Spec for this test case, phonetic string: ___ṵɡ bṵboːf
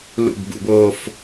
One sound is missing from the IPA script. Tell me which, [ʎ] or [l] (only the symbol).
l